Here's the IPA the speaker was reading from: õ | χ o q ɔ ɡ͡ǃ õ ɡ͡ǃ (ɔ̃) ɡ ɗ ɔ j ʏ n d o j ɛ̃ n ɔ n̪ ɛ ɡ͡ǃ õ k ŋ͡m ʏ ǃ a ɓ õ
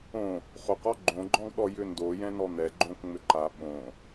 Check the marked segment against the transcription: correct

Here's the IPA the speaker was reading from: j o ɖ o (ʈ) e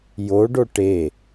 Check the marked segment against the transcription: correct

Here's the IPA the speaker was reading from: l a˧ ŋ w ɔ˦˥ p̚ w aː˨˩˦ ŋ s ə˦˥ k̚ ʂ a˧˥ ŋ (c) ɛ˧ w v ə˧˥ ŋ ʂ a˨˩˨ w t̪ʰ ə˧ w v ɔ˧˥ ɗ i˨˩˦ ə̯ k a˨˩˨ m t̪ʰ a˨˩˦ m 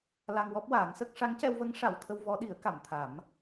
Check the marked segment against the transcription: correct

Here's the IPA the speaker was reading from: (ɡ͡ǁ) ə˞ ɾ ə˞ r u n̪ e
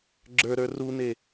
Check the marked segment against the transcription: correct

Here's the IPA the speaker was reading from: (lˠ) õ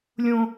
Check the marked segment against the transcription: incorrect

